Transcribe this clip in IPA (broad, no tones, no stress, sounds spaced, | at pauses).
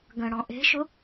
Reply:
ɡ ə̃ ɽ ɔ̃ ʔ e̤ ʃ ʊ